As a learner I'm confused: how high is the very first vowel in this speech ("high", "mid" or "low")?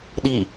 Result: high